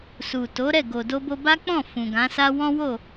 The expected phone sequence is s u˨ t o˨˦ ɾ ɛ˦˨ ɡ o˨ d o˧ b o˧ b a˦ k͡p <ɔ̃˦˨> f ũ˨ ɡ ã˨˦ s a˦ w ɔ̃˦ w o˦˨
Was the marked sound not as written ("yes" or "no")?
no